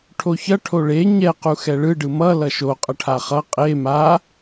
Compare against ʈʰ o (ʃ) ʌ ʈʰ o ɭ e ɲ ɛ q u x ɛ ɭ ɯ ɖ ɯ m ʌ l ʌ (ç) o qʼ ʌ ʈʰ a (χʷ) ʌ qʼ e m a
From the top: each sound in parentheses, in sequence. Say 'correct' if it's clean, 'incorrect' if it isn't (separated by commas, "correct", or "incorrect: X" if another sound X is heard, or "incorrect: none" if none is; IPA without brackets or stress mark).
incorrect: ç, incorrect: ʃ, incorrect: χ